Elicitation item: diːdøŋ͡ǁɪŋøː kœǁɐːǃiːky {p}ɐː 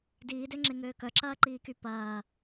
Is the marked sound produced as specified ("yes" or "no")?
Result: yes